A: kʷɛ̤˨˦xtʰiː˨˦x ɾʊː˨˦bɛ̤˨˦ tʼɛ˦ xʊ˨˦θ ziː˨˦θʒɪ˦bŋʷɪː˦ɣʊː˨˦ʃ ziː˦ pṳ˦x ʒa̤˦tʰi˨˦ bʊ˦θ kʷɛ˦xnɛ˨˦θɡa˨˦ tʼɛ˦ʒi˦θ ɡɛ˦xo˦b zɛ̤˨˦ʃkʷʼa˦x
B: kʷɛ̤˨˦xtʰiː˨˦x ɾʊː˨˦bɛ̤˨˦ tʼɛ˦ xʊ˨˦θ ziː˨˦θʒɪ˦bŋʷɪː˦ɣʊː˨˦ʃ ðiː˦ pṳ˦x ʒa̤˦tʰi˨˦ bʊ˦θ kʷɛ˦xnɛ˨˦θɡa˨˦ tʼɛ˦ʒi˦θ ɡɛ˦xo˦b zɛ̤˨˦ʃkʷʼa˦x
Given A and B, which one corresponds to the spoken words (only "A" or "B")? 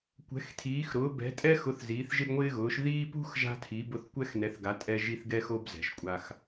B